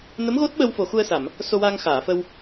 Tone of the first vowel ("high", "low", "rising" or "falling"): rising